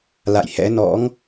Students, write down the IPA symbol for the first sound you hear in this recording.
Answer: l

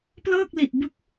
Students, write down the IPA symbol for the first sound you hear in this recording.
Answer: p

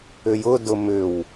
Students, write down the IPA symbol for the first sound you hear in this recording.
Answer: ʏ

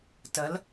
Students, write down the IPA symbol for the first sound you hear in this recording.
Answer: t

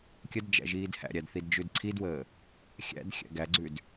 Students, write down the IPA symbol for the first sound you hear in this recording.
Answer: kʲ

